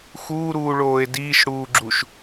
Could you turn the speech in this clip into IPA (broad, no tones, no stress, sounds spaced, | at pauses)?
x uː ɾ uː ɭ oː e̯ d iː ʃ ɽ uː ɡ͡ǁ u ʃ